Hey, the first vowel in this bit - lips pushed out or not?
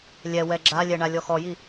no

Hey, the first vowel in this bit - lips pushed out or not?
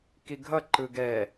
no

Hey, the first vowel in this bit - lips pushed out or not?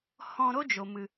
yes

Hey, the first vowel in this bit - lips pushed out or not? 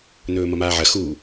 yes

